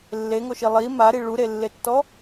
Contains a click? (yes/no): no